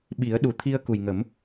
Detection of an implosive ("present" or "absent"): present